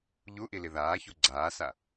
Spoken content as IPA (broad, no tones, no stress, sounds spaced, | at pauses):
ʎ u ʔ i l i ð aː ç u ɡ͡ǀ aː s a